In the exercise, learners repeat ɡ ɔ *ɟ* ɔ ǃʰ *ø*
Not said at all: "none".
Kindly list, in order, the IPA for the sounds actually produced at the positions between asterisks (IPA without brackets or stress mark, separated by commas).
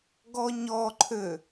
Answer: ɲ, ø